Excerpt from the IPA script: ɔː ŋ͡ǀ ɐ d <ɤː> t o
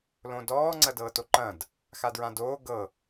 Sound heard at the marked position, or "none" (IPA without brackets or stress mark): ɤː